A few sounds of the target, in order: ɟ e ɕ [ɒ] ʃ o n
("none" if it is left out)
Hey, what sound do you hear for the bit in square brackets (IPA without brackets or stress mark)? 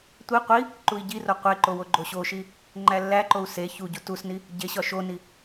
ɒ